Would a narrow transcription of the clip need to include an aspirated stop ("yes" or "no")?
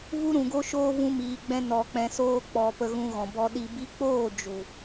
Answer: no